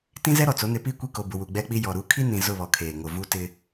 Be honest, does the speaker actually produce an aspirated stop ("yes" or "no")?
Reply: yes